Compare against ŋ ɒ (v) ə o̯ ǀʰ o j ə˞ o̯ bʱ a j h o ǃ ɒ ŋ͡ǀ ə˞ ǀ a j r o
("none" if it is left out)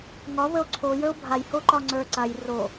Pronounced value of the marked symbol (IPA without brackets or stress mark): β